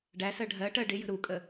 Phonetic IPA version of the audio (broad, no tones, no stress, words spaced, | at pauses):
ɖæsɜ ɖʱɜʈɜ ɖɪjə̤ ɾukʼə